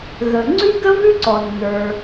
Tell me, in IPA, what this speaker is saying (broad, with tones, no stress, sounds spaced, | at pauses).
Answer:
ɣ ə˩ ŋ͡ǀ ʉ˥ ɡ ə˥ v ʉ˥ ǀ ɔ˩ nː ə˞˩